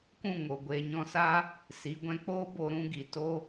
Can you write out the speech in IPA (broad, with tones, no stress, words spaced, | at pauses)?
kũ˦˨ŋo˨ɡʷeː˨ɲɔ̃˧ sa˦ | si˨˦ ɡʷɛ̃˧k͡poː˦ bo˧ ɾũ˦ɡi˨ to˦